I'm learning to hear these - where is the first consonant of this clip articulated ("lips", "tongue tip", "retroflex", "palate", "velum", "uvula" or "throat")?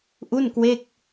throat